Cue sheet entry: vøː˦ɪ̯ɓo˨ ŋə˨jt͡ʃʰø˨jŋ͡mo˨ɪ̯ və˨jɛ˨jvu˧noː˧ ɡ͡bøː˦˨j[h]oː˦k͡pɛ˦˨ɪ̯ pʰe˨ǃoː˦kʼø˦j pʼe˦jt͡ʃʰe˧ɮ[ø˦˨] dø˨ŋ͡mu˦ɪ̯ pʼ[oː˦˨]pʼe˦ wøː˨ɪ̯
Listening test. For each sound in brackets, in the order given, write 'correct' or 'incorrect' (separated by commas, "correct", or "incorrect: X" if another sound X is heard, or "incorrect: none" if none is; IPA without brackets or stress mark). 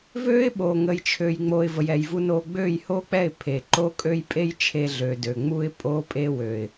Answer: correct, incorrect: ø˨, incorrect: oː˦